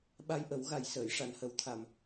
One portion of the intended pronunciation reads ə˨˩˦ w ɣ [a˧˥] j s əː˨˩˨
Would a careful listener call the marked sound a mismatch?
yes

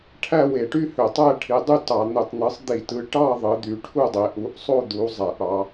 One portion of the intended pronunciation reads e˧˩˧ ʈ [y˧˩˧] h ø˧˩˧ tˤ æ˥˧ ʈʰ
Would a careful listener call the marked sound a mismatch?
yes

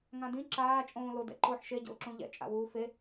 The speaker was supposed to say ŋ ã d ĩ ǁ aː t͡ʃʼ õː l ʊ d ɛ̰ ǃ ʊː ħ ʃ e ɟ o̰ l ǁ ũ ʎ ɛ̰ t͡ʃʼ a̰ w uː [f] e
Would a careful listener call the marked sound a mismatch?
no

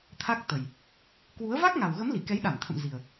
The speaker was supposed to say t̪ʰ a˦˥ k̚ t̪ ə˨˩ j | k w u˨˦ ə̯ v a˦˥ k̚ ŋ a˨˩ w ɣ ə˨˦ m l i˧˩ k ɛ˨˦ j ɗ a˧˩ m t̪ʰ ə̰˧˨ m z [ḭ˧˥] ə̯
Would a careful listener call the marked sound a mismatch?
yes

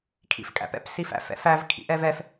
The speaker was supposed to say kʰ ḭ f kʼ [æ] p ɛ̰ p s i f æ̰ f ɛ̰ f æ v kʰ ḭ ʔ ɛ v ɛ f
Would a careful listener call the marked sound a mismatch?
yes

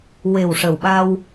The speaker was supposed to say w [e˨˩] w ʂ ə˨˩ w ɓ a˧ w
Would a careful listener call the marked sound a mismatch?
no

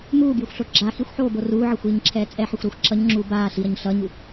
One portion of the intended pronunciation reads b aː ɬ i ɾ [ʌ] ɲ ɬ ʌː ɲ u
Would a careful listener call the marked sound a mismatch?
no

